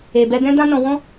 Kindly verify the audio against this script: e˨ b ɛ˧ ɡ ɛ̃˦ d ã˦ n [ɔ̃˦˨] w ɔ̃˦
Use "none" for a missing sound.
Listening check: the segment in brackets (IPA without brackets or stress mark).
ɔ̃˧